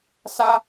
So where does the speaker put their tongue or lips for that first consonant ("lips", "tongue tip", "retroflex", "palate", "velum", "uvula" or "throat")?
tongue tip